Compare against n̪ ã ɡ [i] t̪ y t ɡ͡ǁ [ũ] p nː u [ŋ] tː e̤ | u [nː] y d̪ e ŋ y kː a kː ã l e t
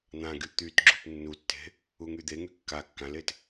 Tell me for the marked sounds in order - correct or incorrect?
incorrect, incorrect, incorrect, incorrect

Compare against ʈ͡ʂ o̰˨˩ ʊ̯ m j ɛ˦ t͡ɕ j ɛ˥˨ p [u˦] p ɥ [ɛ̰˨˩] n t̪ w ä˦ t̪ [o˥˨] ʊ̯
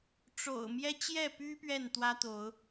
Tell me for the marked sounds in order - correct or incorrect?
incorrect, incorrect, incorrect

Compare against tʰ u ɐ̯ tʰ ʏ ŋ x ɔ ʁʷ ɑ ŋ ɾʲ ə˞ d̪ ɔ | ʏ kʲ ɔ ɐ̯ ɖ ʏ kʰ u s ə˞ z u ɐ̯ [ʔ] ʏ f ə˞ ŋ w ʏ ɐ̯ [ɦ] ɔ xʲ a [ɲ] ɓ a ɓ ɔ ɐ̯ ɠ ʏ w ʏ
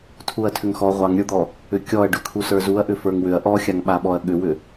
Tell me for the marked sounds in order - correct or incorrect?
correct, incorrect, incorrect

